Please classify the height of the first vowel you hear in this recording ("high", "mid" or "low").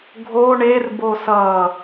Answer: mid